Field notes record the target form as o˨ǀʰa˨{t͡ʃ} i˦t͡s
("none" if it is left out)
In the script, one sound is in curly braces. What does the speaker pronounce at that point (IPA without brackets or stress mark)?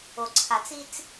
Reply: t͡s